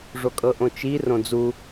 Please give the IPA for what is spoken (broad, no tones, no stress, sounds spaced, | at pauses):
ʐ o kʼ ɤ ʔ õ t͡ʃ i r õ d͡z u